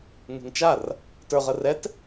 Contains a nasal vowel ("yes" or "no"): no